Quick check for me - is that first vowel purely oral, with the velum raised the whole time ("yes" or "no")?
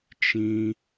no